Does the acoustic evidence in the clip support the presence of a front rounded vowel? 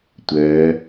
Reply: yes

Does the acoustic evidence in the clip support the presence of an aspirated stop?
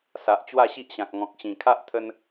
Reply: yes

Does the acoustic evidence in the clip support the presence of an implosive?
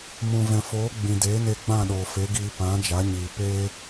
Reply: yes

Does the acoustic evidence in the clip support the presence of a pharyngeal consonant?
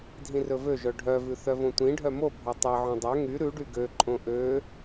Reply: yes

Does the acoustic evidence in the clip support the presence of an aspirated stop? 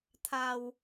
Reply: yes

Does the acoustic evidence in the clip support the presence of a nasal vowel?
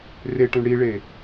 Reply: yes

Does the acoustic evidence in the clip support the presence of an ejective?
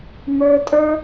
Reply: yes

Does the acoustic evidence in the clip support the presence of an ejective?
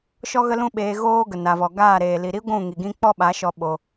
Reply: no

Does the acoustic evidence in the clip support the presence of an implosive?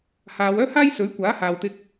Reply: no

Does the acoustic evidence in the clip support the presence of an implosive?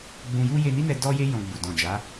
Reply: no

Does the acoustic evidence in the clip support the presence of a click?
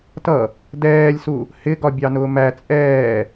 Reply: no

